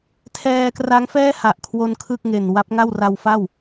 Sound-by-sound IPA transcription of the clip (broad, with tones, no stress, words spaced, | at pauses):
tʰɛː˧kra˦˥ŋfɛː˥˩ ha˨˩ʔkʰwo˧n kʰɯ˥˩k̚ŋe˨˩n wa˦˥p̚ŋa˥˩w ra˧wfa˥˩w